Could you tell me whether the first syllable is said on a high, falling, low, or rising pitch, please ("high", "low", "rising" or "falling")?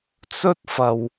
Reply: high